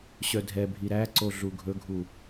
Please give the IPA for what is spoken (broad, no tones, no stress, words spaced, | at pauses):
ɕœdʱɛ bʱiɾæǀoɮu ɡʱɵɡʱu